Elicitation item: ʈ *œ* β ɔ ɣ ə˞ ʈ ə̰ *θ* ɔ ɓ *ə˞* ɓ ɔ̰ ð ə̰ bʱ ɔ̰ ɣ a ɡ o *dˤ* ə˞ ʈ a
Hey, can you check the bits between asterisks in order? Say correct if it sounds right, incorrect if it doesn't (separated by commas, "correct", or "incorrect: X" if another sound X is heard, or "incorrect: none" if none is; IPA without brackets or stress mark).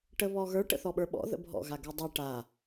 incorrect: ə, correct, correct, correct